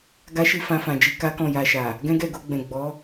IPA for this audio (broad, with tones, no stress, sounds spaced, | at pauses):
ɡ a˦ ʃ i˦˨ f ã˧ f ã˨ d͡ʒ i˧ k a˦ k ɔ̃˦˨ j a˧ ʃ a˨ | ɡ ɛ̃˦ ɡ ɛ˦˨ ɡ o˧ ɡ͡b ɛ̃˨ ɡ͡b ɔ˨˦